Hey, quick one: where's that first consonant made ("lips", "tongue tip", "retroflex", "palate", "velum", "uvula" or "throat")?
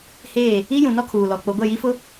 throat